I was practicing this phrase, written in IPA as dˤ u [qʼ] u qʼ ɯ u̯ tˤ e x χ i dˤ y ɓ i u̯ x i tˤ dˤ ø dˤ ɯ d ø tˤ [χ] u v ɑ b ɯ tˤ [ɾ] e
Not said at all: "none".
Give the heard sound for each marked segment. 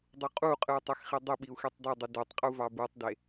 qʼ, qʼ, d

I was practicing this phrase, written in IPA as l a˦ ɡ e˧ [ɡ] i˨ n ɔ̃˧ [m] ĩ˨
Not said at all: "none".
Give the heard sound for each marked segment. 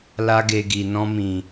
ɡ, m

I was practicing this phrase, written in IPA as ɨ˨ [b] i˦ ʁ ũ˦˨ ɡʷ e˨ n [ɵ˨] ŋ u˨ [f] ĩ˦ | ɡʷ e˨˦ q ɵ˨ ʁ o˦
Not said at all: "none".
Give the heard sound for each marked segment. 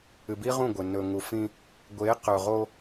b, ɵ˨, f

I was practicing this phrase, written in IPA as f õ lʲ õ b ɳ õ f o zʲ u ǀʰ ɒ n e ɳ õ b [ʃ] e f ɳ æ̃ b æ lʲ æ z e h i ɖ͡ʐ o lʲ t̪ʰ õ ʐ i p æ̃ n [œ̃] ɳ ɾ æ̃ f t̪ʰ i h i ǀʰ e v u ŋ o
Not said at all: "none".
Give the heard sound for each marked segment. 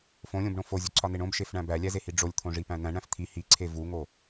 ʃ, æ̃

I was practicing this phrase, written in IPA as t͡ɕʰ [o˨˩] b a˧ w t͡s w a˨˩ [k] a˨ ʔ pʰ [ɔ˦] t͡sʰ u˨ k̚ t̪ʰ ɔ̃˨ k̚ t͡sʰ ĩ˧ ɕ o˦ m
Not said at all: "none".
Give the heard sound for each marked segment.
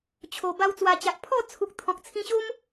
o˨˩, t͡ɕ, ɔ˥˧

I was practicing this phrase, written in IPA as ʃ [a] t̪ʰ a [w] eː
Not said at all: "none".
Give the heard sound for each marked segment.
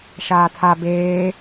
aː, b

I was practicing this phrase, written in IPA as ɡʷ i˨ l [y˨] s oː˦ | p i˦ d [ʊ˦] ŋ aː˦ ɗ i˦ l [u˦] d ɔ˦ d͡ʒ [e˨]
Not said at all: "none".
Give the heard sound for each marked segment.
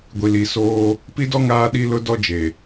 i˨, ɔ˦, ʊ˦, e˨

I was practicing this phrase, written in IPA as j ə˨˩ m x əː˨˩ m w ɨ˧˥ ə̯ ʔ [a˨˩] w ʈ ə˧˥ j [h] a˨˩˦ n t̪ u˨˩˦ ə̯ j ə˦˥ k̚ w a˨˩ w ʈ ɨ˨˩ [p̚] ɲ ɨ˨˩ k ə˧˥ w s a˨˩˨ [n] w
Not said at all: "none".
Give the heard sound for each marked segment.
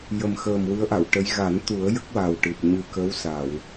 a˨˩˨, ɣ, p̚, none

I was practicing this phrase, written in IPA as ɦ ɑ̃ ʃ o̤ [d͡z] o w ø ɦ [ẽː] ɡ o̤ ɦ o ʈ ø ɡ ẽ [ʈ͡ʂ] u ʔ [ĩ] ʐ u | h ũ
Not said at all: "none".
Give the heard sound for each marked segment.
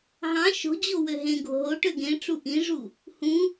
d͡ʑ, ẽ, ʈ͡ʂ, ĩ

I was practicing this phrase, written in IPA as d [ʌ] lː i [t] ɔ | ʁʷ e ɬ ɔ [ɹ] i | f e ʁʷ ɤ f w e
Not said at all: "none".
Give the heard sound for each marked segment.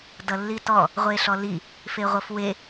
ʌ, t, l

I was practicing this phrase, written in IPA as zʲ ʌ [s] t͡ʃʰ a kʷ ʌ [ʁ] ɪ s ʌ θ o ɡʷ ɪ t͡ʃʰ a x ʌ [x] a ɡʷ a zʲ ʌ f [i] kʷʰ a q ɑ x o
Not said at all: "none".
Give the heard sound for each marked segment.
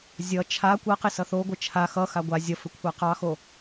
none, q, x, ɪ

